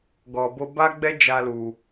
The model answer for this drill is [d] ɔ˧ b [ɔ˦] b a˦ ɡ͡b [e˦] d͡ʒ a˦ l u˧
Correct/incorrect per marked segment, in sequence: incorrect, incorrect, incorrect

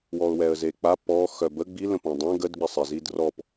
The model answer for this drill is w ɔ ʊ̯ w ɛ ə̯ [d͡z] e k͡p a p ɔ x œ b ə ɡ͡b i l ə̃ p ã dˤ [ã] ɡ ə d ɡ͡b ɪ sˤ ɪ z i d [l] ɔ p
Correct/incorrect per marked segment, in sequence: incorrect, correct, incorrect

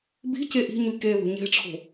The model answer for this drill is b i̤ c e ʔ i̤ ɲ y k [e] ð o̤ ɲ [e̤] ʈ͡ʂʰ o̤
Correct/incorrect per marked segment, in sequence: correct, correct

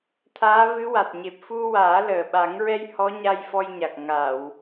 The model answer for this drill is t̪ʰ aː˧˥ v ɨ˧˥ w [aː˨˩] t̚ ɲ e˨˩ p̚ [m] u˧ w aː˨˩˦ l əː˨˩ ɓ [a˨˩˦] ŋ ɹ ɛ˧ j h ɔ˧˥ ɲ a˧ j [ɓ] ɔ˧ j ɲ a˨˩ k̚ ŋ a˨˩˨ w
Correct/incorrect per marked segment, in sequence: incorrect, incorrect, correct, incorrect

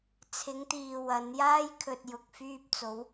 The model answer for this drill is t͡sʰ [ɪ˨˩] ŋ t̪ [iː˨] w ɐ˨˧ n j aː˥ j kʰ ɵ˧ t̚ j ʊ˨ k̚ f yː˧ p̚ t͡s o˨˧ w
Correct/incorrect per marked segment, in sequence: incorrect, correct

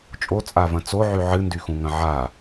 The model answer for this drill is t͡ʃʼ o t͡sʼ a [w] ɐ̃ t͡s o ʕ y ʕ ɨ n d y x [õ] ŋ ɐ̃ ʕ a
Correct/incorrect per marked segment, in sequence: incorrect, incorrect

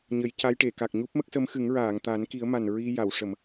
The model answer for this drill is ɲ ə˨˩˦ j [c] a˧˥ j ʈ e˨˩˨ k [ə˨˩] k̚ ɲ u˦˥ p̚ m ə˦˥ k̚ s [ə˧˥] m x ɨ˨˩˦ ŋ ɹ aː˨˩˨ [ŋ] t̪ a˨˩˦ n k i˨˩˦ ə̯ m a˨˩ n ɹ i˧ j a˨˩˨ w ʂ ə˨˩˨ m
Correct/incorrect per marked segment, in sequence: correct, incorrect, correct, correct

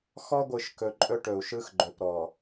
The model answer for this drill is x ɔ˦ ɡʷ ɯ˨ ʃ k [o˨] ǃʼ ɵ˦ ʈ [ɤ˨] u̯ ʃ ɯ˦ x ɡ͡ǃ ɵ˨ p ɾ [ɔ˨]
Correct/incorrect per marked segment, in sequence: incorrect, incorrect, correct

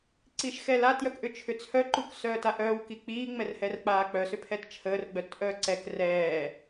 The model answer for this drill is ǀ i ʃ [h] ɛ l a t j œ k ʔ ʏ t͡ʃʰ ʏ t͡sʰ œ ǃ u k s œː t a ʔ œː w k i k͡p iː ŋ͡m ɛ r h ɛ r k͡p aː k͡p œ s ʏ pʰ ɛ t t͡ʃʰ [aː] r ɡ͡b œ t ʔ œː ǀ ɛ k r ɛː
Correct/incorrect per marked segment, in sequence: incorrect, incorrect

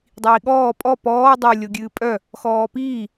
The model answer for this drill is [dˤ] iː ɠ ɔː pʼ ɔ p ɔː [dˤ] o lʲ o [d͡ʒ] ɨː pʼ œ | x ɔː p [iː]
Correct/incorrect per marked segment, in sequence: correct, correct, incorrect, correct

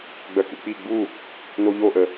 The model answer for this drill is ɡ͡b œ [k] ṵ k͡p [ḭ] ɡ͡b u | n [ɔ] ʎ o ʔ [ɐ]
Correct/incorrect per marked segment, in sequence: correct, incorrect, incorrect, incorrect

